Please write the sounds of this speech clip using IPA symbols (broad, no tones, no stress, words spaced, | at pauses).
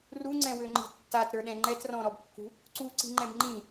ruŋ͡ǀɛ̃wøŋ͡ǃi̤ tːatɾə˞ɗɛ̃ ŋ͡ǃɛtrɔ̃ɾɔbkːṳ | ǀuǀi̤ŋ͡ǃɛ̃b ŋ͡ǃĩ